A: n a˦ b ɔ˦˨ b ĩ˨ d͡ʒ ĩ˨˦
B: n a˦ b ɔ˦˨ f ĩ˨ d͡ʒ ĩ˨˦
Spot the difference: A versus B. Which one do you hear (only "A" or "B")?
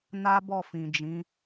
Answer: B